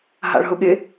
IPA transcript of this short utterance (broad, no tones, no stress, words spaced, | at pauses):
ɦa̰ɭɦʊɠɪ